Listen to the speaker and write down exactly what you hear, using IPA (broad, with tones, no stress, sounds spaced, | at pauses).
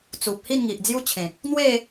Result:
t͡s u˨ p̚ h i˥˧ n ŋ i˨ ʔ d͡z j u˦ t͡ɕʰ ẽ˨ k̚ | n̪ w e˥˧